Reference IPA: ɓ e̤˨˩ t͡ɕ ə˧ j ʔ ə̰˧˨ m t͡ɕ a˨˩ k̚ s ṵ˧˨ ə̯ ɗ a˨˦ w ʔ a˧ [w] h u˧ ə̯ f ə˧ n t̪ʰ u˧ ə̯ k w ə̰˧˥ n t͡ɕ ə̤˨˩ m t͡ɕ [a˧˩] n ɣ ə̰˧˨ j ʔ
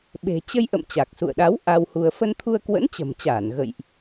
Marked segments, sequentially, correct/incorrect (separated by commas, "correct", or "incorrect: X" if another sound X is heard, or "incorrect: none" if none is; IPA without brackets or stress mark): correct, incorrect: aː˧˩